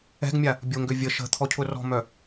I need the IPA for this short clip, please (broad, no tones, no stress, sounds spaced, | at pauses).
ɛ̤ ɡ mʲ a | bʲ o ŋ ɡ ø vʲ ə ʃ ə̤ t̪ʰ ɔ cʰ ʊ r ɔ̤ m œ